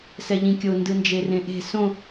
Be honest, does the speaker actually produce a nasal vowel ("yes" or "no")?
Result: yes